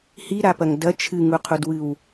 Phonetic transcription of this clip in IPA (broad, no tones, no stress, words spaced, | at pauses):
hiɾapɐŋ dɐ t͡ʃʰɨŋuqʰudwɨw